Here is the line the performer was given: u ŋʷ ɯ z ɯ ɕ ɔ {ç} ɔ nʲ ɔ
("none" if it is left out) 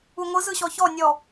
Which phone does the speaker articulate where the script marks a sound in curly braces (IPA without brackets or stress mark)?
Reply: ç